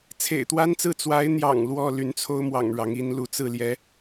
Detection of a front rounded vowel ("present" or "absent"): present